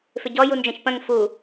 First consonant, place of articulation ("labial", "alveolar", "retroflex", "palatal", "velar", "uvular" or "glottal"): labial